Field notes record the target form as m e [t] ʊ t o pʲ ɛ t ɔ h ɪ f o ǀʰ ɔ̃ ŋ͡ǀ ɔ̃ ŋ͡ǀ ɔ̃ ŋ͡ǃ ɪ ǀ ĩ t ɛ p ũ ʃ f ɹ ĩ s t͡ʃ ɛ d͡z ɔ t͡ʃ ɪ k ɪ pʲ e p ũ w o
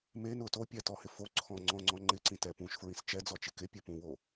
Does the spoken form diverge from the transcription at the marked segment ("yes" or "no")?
yes